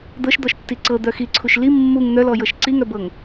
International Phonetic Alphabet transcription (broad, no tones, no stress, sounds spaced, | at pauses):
d̪ ɤ ʃ d̪ ɔ ʃ tː i ǀ ɤ d̪ œ x i ǀʰ u ʃ l i mː u ŋ n̪ œ l ɔ j ɤ ʃ ǀ i ŋ œ b ɤ ŋ